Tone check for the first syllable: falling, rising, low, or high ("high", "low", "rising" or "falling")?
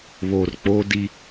low